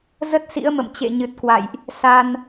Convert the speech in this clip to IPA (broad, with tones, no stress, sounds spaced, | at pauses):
z ə˦˥ t̚ s ḭ˧˥ ə̯ m ə̰˧˨ m t͡ɕ ḛ˧˨ ɲ ɨ˨˩ t̚ k w a̰˧˨ j ʔ | s a˧ n